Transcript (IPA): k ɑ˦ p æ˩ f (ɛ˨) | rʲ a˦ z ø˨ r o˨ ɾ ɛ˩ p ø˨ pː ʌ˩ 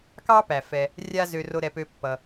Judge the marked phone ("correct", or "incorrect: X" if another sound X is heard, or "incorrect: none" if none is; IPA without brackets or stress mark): correct